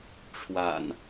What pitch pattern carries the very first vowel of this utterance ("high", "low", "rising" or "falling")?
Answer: low